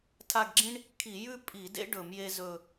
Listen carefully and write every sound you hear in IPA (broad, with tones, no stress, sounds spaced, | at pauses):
tʰ a˦˨ ɡ ɡ͡ǁ ĩ˥ ɳ | kʰ i˧˩˧ j ʉ˥ pʼ i˧˩˧ d ḛ˥ ɖ ɵ˧˩˧ m j e˥ z ɵ˦˨